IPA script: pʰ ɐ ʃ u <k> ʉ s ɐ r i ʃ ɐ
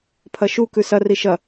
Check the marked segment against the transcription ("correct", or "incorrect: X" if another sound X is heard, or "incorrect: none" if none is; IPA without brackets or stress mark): correct